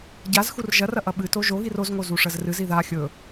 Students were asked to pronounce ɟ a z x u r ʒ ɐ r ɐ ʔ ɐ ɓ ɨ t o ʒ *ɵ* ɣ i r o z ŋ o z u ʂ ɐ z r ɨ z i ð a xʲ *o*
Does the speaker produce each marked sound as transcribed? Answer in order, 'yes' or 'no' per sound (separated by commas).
no, no